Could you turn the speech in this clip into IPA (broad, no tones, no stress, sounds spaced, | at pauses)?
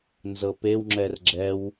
n z ɤ p e w ŋ͡ǁ ɛ r ɡ͡ǁ ɛ w